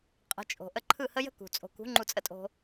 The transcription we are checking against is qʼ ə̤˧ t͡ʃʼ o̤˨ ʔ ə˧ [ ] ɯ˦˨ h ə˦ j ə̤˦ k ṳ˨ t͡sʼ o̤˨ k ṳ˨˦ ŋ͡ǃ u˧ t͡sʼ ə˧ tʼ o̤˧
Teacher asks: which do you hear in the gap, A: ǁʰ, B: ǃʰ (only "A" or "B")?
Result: B